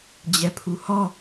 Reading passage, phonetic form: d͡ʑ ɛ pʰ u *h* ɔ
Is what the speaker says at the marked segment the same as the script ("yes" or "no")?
yes